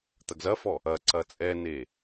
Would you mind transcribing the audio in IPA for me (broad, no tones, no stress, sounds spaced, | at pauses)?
t̪ ɐ ɡ z ɐ f ɔ | ɐ ǀ ɐ t͡sʼ ɛ n e